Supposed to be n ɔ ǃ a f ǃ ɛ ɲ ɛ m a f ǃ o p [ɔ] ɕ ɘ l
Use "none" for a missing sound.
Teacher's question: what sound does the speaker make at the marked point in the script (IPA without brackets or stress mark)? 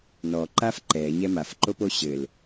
o